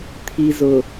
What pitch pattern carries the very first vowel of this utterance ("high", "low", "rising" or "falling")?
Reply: low